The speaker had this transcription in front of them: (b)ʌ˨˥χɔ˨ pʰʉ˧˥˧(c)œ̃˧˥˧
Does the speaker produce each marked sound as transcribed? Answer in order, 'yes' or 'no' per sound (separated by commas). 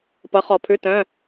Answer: no, no